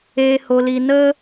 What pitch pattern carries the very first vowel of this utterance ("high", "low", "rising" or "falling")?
low